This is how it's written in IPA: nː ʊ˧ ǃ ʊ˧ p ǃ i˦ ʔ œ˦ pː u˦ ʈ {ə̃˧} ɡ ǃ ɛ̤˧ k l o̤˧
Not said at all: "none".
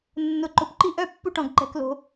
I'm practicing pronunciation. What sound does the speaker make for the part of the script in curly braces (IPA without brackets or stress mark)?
ɔ̃˧